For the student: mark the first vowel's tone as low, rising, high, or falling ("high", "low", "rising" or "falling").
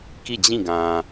falling